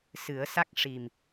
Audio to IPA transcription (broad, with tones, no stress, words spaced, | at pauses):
sɨ˨˩˦ə̯sa˦˥k̚ ʂi˨˩m